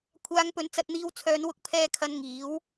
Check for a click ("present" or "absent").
absent